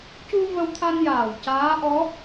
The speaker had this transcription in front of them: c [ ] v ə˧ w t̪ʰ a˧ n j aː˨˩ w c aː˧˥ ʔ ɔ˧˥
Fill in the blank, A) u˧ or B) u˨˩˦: A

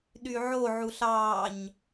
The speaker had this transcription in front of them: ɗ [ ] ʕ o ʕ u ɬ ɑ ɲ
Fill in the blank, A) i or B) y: B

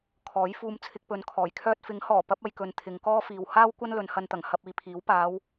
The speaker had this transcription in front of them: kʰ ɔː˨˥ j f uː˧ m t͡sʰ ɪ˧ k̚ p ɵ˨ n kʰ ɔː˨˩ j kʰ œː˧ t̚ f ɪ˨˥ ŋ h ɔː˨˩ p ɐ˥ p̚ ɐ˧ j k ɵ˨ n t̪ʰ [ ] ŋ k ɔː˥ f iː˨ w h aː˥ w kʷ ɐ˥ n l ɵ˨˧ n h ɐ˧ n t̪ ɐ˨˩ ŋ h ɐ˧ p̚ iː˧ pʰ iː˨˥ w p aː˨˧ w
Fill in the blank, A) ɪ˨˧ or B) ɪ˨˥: A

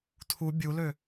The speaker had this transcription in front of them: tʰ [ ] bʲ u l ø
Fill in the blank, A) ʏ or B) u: B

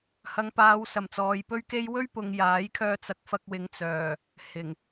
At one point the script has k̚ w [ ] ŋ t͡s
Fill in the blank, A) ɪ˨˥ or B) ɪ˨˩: A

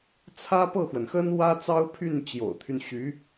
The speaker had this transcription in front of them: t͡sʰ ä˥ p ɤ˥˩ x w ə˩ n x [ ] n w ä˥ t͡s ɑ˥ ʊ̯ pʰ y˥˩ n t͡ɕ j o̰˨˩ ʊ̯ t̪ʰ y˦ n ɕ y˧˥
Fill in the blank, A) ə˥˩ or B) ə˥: B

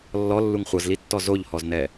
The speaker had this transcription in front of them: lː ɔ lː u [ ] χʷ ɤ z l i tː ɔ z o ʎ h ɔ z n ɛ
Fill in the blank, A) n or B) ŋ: B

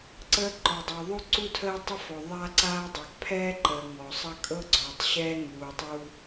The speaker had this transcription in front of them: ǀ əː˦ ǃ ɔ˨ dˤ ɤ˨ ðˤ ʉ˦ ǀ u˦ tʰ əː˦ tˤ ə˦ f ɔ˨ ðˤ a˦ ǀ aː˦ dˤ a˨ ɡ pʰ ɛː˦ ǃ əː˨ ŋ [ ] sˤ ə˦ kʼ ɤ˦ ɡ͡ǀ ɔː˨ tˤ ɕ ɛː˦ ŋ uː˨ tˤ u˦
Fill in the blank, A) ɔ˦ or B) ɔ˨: B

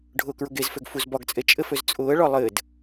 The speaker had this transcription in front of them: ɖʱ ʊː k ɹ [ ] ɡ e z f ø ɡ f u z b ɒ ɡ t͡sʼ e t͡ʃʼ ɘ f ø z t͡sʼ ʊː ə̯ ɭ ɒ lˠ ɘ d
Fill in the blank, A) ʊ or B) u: A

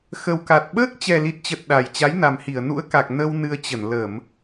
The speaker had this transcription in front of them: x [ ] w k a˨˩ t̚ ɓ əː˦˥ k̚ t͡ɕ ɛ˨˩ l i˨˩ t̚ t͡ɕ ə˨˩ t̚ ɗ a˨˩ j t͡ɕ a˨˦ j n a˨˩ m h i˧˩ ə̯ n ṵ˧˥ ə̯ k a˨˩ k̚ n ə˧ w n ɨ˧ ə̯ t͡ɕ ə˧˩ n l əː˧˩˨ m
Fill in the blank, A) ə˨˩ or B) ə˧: A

